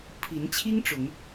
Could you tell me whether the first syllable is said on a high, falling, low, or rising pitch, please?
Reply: rising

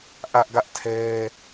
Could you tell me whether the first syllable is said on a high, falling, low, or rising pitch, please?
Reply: high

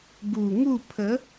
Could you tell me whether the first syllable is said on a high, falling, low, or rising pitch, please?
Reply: low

